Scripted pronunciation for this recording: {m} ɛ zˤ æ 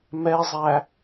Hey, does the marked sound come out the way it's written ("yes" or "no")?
yes